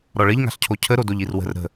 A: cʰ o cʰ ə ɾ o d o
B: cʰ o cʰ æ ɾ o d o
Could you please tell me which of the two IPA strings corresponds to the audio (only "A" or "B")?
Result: A